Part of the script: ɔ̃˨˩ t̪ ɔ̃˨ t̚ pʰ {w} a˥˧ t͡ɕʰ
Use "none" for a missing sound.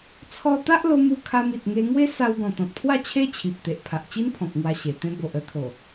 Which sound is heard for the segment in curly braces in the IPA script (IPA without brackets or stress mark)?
w